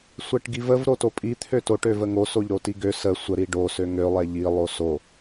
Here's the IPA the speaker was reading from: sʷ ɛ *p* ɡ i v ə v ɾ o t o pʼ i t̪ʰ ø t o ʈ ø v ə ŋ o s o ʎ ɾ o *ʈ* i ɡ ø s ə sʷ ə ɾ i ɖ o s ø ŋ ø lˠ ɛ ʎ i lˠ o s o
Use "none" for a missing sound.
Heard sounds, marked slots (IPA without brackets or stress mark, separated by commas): ʈ, t